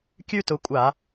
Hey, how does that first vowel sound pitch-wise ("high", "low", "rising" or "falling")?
high